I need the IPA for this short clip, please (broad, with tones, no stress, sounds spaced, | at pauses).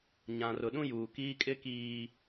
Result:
ɲ ã˨ r ʊ˨ ɗ ũ˦ j uː˨ k iː˦ kʼ ɪ˦ k iː˨